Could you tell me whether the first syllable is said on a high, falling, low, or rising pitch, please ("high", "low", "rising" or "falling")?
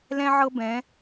high